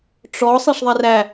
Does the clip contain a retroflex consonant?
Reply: yes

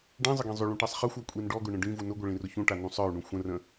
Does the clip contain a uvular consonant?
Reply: yes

